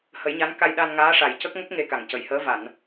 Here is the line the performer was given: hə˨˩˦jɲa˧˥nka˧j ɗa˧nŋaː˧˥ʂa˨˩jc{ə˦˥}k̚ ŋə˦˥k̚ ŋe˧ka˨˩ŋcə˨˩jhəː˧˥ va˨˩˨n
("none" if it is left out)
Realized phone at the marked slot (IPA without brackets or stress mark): ə˦˥